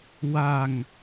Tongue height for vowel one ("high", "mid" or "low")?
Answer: low